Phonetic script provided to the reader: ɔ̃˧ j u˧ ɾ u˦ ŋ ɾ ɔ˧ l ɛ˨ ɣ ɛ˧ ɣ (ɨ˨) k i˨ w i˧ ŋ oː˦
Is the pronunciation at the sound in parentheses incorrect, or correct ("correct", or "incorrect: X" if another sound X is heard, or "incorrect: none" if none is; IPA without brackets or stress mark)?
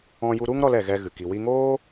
correct